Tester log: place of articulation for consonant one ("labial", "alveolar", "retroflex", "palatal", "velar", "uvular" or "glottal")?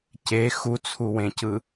palatal